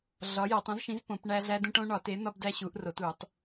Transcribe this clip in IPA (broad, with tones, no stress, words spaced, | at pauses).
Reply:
ɮɒ˨˥jæ˨˩˦tˤ ũ˨˥zʃĩ˨˥z põ˨˩˦pɳæ˦ ɮæ˦dũ˦ʈ õ˦ɳɒ˨˩˦te˨˥n̪ɒ˦b dæ˦ɕu˨˩˦ʔ ro˨˩˦tu˨˩˦tˤ